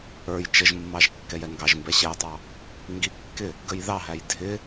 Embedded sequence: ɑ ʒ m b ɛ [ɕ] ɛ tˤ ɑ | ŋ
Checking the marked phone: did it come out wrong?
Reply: no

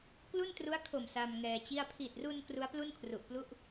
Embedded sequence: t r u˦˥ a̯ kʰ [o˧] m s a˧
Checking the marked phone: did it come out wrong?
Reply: yes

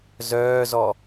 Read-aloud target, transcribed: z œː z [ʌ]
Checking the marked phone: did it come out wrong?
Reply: yes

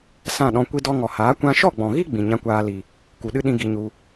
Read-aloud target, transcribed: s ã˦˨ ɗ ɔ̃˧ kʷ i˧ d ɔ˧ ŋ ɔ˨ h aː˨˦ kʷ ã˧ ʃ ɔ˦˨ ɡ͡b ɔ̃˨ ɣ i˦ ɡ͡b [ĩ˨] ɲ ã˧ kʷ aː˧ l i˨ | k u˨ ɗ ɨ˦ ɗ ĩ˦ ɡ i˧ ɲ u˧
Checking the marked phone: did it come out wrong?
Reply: no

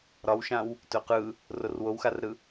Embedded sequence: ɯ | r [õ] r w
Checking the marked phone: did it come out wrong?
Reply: yes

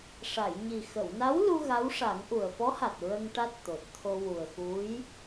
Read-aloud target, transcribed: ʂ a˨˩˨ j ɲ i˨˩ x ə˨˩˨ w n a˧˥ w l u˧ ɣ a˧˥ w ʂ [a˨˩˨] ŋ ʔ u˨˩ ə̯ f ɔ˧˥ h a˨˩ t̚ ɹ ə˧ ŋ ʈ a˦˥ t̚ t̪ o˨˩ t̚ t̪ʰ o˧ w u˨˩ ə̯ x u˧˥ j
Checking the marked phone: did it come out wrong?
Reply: yes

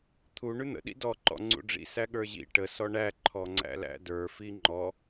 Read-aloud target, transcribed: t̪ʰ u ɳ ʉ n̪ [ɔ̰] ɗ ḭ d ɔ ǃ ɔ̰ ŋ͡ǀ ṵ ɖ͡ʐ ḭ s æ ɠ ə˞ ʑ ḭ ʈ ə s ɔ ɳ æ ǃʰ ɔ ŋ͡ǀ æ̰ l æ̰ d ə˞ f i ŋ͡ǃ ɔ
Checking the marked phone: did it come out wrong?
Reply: yes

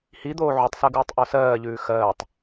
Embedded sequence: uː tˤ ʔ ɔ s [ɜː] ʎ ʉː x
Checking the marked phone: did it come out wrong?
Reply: no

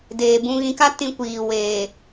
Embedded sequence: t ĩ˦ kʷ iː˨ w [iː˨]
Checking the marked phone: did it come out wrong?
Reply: yes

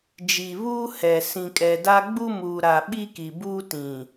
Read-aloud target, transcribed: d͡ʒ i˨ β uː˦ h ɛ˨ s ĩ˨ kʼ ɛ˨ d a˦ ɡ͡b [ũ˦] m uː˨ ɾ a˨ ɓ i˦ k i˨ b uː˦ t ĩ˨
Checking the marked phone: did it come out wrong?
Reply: yes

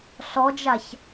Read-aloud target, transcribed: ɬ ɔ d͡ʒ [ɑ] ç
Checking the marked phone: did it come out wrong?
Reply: yes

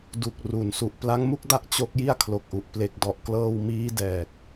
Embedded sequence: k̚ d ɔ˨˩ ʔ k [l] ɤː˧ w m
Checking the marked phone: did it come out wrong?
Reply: no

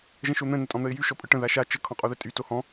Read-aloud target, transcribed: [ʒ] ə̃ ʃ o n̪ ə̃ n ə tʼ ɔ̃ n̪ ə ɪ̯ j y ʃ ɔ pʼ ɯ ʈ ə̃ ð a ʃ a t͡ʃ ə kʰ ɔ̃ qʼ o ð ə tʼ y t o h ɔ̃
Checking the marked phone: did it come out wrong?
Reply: no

